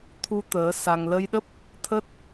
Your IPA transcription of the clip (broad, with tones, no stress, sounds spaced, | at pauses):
t̪ʰ u˧ t̪ əː˨˦ s a˧ ŋ l ə˧ j ɗ ə˦˥ p̚ | t̪ʰ ə˦˥ t̚